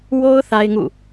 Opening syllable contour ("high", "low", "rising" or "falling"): high